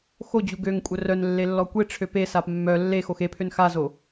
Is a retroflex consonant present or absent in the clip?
present